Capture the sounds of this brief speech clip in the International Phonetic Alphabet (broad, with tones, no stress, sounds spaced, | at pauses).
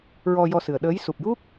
ɹ ɔ˧ j ɔ˧ s ɨ˨˩ ə̯ ɗ əː˧˥ j s u˨˩ p̚ j u˦˥ k̚